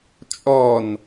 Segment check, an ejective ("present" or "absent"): present